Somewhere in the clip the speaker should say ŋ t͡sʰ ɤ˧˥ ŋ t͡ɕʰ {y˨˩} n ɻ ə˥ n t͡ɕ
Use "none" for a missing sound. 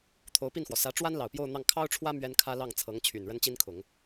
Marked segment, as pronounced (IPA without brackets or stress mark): y˨˩